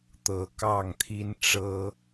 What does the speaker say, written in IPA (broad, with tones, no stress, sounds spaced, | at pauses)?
t̪ ɤ˨˦ k ɑ˥˨ ŋ t̪ʰ i˦ n ʈ͡ʂ ɤ˦